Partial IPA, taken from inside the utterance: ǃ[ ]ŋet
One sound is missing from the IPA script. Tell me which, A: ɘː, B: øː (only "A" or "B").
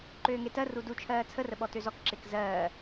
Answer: B